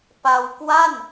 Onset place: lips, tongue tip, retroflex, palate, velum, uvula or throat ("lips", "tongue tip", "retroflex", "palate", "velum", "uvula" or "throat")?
lips